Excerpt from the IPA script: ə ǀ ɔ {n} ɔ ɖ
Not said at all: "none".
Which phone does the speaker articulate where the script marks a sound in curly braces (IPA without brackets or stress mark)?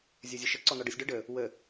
n